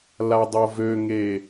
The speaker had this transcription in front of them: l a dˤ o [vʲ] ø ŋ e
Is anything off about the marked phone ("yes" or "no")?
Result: yes